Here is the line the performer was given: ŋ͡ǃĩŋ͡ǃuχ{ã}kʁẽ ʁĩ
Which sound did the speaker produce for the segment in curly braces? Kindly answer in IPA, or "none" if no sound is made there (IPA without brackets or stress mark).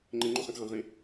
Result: ã